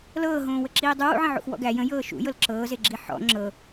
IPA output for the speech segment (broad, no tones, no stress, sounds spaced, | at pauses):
l ɤː ɦ õː w ə ǁ iː dˤ u w ṵ ʕ ə̃ ʕ ṵ x w ɔ̰ ɡ æ j ə̃ j ɤː ʃ ṵ j ɤ l ǁ ɤː z e ɡ͡ǁ i ħ ɔ̰ ŋ͡ǁ ɤ